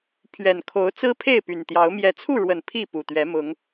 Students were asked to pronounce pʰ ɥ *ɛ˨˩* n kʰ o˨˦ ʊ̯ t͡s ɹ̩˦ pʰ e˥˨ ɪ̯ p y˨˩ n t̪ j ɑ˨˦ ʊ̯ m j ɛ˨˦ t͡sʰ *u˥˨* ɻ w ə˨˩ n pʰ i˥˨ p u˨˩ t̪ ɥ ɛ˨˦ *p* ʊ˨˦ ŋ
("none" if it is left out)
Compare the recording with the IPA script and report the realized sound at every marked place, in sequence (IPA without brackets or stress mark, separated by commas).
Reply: ɛ˨˩, u˥˨, m